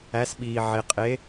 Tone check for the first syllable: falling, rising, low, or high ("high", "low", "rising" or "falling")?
rising